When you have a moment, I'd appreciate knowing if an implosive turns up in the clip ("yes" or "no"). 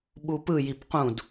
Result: yes